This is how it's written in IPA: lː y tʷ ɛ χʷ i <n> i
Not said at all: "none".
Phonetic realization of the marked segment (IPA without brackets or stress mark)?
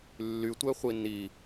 n